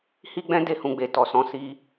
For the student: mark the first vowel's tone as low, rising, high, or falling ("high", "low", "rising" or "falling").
high